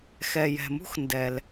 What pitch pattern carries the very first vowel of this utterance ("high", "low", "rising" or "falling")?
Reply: low